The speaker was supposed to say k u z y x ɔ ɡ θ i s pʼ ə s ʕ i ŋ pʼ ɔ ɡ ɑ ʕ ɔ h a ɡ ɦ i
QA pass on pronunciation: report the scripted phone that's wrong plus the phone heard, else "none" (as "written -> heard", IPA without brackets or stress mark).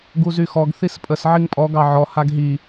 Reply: k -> ɡ